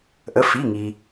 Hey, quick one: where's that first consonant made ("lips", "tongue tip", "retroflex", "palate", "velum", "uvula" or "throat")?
throat